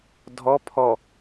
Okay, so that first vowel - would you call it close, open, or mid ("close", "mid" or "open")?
mid